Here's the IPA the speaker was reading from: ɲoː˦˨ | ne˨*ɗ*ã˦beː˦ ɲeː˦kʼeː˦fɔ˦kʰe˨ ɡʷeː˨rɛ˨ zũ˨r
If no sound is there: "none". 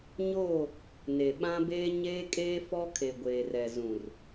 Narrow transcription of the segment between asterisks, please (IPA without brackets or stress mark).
ɓ